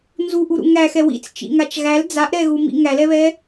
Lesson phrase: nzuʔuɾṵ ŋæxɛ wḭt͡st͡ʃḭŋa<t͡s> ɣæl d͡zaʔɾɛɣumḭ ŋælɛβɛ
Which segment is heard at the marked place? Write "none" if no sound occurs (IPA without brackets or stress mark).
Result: t͡ʃ